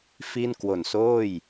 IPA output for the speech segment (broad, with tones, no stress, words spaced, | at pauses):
fi˥˩n kwo˨˩nsoː˥˩j